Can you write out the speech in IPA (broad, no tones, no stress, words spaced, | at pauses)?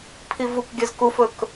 pʰivukɡʲœz kufɵk